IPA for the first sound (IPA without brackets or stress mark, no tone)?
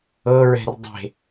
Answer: ɤ